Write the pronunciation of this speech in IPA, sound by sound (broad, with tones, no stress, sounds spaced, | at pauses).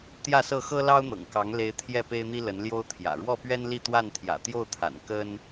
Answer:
t̪ j ä˥˨ s ɤ˥˨ x ɤ˦ l ɑ˦ ʊ̯ n̪ ɤ̰˨˩ ŋ k ɑ˨˦ ŋ l e˨˦ ɪ̯ t̪ʰ j ɛ˥˨ p e˦ ɪ̯ n̪ i˦ l ə˨˦ n l j o˦ ʊ̯ t̪ʰ j ä̰˨˩ ɻ w ɔ˥˨ p ɥ ɛ˦ n l i˥˨ t̪ w a˥˨ n t̪ʰ j ä̰˨˩ t̪ j o˥˨ ʊ̯ t̪ʰ a̰˨˩ n k ə˦ n